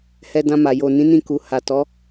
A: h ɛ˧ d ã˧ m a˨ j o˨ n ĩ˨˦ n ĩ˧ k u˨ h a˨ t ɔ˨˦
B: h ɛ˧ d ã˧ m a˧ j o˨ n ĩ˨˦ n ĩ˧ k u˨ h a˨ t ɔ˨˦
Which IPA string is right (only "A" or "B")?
A